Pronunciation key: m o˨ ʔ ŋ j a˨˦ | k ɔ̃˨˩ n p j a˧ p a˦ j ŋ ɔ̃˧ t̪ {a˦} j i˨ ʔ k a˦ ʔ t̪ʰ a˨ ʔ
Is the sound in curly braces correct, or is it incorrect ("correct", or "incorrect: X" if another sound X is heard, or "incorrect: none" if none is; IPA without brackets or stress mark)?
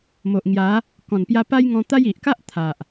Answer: correct